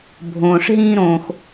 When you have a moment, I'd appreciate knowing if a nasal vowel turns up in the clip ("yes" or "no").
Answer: yes